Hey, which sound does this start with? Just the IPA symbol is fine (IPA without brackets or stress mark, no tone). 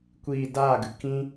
kʷ